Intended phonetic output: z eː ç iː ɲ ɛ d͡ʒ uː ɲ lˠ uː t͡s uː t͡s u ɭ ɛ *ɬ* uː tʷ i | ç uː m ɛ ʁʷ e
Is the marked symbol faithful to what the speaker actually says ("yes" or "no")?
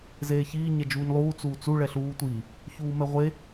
yes